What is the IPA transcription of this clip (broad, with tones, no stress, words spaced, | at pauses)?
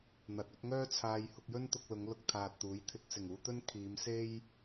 n̪ɐ˧t̚ɵ˥t̚ ŋœː˥t͡sʰaː˧j hʊ˧k̚jɵ˥n t̪ʊ˧k̚lʊ˨˧ŋ lʊ˧k̚t̪ʰaː˨t̚ t̪uː˨˥jt̪ʰɪ˧k̚ sɪ˨˩ŋuː˧t̪ɵ˥n kʰiː˨˧m se˥j